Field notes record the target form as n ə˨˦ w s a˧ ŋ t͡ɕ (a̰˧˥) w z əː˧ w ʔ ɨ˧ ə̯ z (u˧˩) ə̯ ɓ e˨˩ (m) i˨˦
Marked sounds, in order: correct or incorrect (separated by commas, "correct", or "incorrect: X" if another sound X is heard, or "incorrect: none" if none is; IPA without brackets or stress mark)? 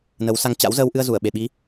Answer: correct, correct, incorrect: ɓ